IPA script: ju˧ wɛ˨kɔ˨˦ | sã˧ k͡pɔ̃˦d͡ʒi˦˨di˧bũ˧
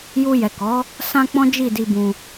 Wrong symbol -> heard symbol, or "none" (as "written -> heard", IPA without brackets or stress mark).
w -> j